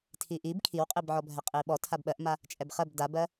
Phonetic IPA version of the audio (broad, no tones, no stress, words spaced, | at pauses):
tʰiʔib kʰiwqʼibʕɔbʱɛ qʼiɓɔ tʰabɓɜʔma | t͡ʃʼɛbχɜb dabɜ